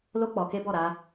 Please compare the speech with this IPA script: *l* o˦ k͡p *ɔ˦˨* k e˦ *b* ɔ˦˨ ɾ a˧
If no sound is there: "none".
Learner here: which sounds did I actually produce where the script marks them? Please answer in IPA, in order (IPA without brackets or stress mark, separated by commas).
l, ɔ˧, b